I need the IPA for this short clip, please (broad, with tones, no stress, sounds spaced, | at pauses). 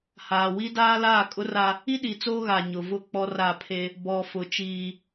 h aː˨ w i˦ d aː˦ l aː˦˨ kʼ ʊ˦ r a˦ | i˦ ɗ i˨ t͡s oː˦ ɣ a˨ ɲ ʊ˨ v ʊ˦˨ k͡p ɔ˦ r a˦˨ pʰ e˦ | b ɔ˨ f ʊ˨ t͡ʃ iː˦